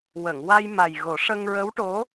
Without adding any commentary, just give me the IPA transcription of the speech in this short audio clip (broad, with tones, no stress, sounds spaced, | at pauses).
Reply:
w ə˨˩˨ ŋ w a˧ j m a˨˩ j ɣ o˨˩˦ ʂ ə˧ ŋ ɹ ə˧˥ w ʈ o˧˥